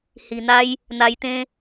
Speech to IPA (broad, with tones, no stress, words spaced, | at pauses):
hi˨˩n̪a˦j | n̪a˧jt̪ẽ˦